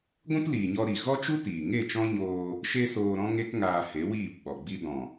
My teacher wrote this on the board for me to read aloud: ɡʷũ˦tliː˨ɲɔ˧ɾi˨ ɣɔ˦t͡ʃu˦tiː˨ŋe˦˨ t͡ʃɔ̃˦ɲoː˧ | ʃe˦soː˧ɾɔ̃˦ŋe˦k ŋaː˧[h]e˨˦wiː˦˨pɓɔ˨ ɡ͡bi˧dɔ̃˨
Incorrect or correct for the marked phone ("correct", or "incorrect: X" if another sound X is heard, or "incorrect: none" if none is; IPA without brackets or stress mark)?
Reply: correct